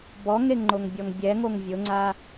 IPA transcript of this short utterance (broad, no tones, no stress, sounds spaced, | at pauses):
b ɔ ŋ e ŋ ŋ͡ǃ o ŋ bʲ ɔ ŋ bʲ ɛ ŋ o ŋ vʲ ʊ ŋ͡ǀ a